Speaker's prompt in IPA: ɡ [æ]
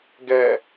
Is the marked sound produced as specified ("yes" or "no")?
no